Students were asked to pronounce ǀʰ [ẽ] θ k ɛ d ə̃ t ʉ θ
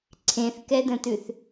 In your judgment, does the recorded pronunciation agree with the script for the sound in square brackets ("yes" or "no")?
yes